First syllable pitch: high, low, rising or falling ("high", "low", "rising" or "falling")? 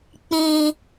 low